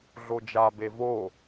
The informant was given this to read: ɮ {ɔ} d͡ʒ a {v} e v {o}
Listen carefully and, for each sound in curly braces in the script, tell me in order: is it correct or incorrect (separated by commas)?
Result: incorrect, incorrect, correct